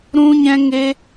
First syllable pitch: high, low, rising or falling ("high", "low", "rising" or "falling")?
high